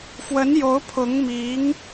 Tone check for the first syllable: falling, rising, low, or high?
rising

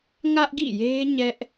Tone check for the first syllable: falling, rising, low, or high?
high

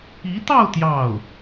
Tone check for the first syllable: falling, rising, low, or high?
rising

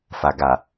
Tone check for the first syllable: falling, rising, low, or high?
low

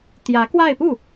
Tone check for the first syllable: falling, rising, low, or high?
rising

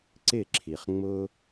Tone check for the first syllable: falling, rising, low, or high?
falling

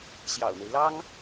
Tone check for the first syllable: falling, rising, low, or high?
low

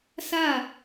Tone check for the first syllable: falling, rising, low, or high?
falling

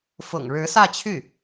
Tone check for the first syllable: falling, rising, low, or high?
low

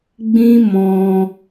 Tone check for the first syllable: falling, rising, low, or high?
high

